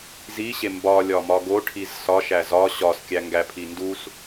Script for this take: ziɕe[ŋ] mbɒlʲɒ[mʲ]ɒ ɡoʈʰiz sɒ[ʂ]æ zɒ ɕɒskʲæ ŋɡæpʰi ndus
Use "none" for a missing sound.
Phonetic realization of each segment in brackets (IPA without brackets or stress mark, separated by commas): none, m, ʃ